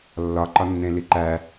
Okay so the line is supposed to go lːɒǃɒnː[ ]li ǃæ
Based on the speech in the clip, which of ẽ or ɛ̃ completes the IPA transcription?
ẽ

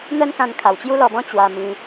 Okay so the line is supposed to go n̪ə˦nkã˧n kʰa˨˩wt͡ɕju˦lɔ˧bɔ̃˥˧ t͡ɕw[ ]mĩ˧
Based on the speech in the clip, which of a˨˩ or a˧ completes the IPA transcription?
a˧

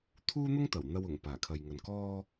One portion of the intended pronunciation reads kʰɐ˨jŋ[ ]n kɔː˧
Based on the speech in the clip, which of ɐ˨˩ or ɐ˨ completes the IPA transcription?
ɐ˨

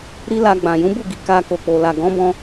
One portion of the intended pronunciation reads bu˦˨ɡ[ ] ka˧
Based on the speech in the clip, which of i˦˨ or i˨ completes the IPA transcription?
i˨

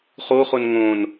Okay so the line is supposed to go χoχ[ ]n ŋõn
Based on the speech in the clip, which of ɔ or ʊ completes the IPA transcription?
ʊ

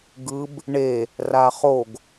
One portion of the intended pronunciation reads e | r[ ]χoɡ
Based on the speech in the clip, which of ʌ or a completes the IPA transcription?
a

